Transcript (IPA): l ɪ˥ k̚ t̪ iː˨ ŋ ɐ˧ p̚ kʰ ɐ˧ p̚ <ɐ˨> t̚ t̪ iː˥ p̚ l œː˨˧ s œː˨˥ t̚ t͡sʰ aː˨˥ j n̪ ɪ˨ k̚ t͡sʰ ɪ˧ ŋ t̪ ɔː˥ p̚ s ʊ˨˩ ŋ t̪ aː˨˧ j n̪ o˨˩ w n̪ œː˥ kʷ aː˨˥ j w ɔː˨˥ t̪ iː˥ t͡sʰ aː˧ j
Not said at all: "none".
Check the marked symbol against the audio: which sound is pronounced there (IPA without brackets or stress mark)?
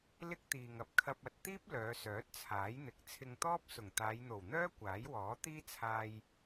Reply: ɐ˨